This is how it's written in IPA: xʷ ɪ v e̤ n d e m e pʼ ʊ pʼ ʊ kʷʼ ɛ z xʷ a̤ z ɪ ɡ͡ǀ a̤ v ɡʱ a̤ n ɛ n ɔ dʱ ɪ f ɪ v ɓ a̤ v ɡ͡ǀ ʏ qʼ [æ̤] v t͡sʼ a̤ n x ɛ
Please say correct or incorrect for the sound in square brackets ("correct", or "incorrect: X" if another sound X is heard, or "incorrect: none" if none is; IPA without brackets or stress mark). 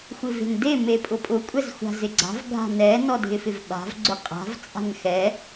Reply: incorrect: a̤